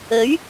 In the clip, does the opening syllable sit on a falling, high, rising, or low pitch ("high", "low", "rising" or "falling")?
rising